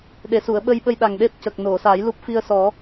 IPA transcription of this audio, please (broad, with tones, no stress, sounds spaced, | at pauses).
ɗ e˨˩ s u˨˩˨ ə̯ ɓ ə˧ j ɓ ə˧ j ɗ a˨˩ ŋ ɗ e˦˥ p̚ c ə˨˩ k̚ n o˨˩˨ s a˨˩˦ j l u˦˥ p̚ f i˧ ə̯ s ɔ˨˩˦